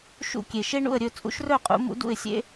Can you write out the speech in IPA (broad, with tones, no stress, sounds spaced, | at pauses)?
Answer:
ʃ ṵ˥˨ kʲ e˨˩ ʃ e˥ ɳ ṵ˥˨ ə̯ ɾʲ ɵ˥˨ t͡sʼ ṵ˧˥ ʃ r œ˥˨ qʼ ṵ˩˥ m ṵ˧˥ d ṵ˥˨ ɪ̯ sʲ ḛ˥